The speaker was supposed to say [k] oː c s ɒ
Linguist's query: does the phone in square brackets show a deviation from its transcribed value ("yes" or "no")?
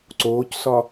yes